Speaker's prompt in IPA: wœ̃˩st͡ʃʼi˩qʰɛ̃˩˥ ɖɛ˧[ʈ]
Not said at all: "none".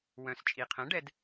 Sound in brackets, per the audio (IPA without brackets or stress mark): d